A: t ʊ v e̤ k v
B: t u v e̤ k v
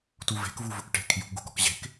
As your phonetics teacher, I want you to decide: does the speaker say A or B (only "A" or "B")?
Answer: B